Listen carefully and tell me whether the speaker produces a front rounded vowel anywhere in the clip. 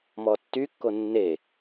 yes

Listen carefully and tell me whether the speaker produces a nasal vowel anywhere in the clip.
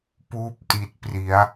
no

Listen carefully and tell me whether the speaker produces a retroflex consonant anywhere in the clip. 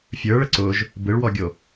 yes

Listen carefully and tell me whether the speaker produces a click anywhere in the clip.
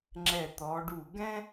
yes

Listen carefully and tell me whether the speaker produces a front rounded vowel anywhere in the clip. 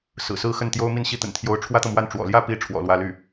yes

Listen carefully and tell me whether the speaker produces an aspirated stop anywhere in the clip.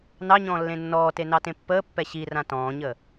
no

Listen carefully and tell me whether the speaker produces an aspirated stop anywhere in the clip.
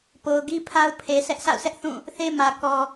yes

